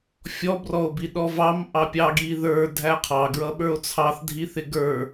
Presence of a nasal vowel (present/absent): absent